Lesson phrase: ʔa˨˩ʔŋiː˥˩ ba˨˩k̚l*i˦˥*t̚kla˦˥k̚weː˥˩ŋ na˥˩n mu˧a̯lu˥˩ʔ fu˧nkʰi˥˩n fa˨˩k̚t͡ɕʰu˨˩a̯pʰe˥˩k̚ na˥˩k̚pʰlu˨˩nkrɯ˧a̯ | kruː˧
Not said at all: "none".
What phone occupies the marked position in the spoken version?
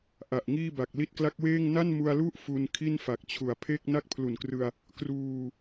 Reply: i˦˥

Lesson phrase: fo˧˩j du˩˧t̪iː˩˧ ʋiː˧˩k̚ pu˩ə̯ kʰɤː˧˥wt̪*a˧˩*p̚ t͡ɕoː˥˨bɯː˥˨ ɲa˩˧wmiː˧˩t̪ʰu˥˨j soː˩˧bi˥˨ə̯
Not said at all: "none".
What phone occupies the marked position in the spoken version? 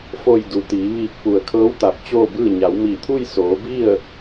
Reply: a˧˩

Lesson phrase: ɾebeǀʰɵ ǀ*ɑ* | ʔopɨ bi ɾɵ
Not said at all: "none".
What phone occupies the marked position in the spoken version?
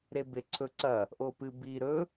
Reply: ɐ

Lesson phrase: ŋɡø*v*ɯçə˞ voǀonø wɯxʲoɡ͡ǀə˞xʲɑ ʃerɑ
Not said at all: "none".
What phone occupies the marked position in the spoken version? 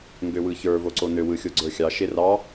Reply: w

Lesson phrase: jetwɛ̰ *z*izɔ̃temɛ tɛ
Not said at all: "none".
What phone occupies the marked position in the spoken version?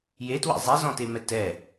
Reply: zˤ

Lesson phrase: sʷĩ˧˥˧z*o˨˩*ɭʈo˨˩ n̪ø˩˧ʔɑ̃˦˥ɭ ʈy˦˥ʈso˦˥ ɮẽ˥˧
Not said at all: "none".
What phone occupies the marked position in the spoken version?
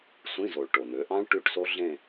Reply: o˨˩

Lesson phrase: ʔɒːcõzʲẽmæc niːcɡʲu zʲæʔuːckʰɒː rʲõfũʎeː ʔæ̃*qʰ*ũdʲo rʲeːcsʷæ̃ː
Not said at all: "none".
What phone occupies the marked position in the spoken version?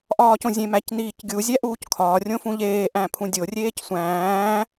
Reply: pʰ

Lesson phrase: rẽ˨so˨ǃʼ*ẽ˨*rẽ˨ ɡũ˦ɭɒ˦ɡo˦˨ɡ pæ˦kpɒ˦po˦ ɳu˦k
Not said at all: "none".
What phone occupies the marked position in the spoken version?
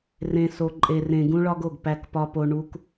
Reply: e˨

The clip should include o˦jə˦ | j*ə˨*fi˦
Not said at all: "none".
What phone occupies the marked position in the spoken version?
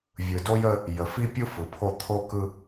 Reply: ə˨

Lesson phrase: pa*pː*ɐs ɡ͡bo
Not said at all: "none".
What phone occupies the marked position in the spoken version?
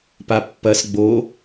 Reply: pː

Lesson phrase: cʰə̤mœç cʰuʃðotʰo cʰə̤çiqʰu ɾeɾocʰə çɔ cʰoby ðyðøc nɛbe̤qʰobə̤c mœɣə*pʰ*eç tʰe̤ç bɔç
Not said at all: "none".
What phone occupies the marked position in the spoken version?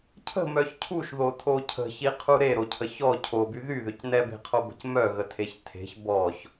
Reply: tʰ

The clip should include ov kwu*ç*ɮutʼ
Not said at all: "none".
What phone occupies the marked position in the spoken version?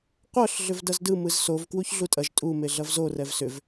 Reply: ç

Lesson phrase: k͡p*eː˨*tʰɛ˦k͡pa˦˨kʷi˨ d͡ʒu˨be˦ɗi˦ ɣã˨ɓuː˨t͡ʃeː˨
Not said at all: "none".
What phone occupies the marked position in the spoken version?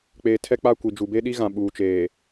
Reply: eː˨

